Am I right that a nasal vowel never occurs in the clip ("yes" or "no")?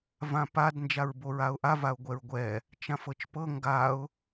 no